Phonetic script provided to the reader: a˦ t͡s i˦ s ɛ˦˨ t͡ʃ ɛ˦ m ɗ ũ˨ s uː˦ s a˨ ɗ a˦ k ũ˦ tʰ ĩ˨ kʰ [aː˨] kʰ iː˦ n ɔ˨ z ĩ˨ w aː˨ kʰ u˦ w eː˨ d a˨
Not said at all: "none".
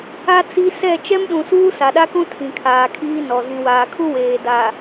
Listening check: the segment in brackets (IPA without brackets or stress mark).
aː˨